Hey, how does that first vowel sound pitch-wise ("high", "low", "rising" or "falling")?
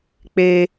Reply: high